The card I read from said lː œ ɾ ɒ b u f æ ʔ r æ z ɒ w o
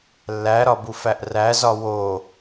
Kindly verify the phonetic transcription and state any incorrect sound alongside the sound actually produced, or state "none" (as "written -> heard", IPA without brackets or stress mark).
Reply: œ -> æ